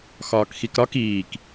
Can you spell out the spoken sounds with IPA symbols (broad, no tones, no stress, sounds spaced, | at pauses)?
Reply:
x ɒː k x i k ɾ ɒ k iː k